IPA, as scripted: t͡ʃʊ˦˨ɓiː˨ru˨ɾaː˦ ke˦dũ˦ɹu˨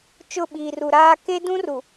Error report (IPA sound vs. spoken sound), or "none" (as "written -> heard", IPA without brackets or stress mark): ɹ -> r